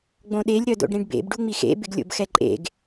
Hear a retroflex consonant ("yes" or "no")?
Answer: yes